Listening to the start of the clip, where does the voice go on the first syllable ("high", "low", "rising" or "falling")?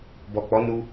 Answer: low